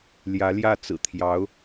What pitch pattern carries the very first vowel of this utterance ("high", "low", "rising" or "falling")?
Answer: rising